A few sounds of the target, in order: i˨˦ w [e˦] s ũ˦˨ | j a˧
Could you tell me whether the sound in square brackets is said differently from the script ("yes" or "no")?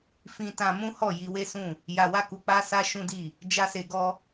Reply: no